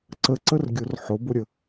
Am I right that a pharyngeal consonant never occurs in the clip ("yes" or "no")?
no